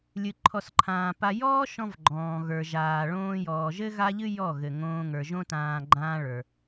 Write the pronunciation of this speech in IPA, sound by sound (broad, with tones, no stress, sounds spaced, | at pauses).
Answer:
lʲ ɨ˨ ǃʰ ɔ˨ s ǃʰ ãː˨ p a˧ j ɔː˦ ʃ ɔ̃˧ v ɡ͡ǃ ɔ̃ː˨ ɣ ə˞˨ ʒ aː˨ ɭ õː˧ j ɔː˨ ʒ ɘ˦ ɣ a˦ ʎ ɨ˦ j ɔ˦˨ ɣ ɘ˨ ŋ õː˧ ŋ ə˞˨ ʒ õ˦ t ãː˧ ɡ͡ǃ ãː˦ ɭ ə˞˧